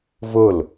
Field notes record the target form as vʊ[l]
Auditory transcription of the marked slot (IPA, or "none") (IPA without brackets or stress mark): l